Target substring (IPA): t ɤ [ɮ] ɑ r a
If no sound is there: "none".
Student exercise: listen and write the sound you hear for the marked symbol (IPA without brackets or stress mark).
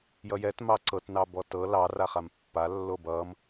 l